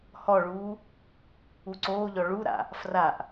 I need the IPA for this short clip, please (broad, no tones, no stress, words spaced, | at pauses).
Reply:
hɔɭuː | uǀoːʎɔ ɭuɾa̰ | fraʔ